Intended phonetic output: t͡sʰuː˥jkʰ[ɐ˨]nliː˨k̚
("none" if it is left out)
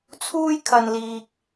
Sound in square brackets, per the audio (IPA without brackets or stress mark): ɐ˨